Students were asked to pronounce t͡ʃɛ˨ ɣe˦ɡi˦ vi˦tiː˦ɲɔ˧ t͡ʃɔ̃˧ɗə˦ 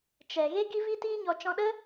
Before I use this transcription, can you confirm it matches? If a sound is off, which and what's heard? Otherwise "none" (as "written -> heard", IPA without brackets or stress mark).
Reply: none